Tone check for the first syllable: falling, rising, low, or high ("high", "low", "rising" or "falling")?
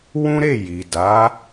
high